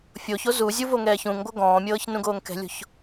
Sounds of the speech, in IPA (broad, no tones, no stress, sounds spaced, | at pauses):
fʲ oː ç o z u zʲ u v o ŋ ɛː ç ũ ŋ ɡʷ ɤ ɡ ɔ̃ː mʲ ɤː ç n ũ ɡ oː ŋ k ɛ̤ lʲ o̤ ç